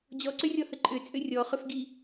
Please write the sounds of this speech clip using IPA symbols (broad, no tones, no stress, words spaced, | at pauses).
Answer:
d͡ʑɔǀʏrʲɔhə ǃʼʏt͡sʼʏ rʲɔχʏfɡi